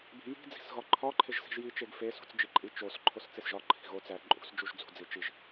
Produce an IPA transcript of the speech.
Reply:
b i̤ j i̤ d͡z i̤ s ɣ ɒ ǃʰ ɒ ǃʰ e ʒ s i̤ ʒ j i t͡ʃ e ɡ f e s ṳ t͡s d͡ʒ i ǃʼ i t͡ʃ o s ǃʰ o s t͡s e s ʒ ɒ ǃʰ i̤ ɣ o t͡s æ ǃʼ ṳ s d͡ʒ u ʒ d͡z ṳ d͡z i t͡ʃ i ʒ

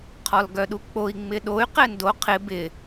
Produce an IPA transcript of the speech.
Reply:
qʰ ɔ l ɡ œ ɗ u k͡p o i̯ ŋ͡m ɪ ɗ o y̯ q ɛ n d o qʰ ɪ b ɪ

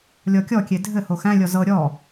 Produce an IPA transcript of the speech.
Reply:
lʲ ɔ kʲ ɔ kʲ e dʱ ɘ h o x æ̃ lʲ ɔ z ɤ ɾʲ ɔ

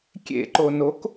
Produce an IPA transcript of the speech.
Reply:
kʲ ḛ ǃ o n o k

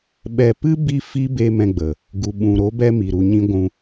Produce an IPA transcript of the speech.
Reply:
ɓ ɛ˧ p ɨ˦ b i˦ f iː˦ b e˧ m ɛ̃˧ ɡ͡b ə˨ | ɡ u˨ ɓ ũ˨ ɾ o˨˦ b ɛ˦ m i˨ ɾ u˧ ɲ ĩ˦ ɡʷ ũ˧

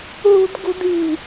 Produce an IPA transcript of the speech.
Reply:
ɦ ṳ d ɡ ṳ d i̤

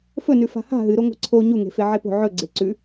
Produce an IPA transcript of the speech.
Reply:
f ɵ n ʉ f a̤ h a̤ ɦ ɨ ɾ o ŋʷ e̤ ǀʰ o ɲ u ŋ e̤ f e ʕ e p o̤ ʕ ɵ ɡ͡ǀ e ǀ ʉ

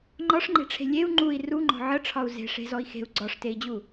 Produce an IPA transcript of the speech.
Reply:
ŋ͡ǃ ɒ ʂ ŋ͡ǃ e̤ ʈ͡ʂʰ e̤ lʲ e u̯ ŋ͡ǃ u i̯ r u ŋ͡ǃ ɔ̤ ʕ ə ʈ͡ʂʰ ɒ u̯ z e̤ ʂ e̤ z ɔ i̯ x e̤ u̯ ɡ͡ǀ ɒ ʂ t e i̯ d͡ʑ u

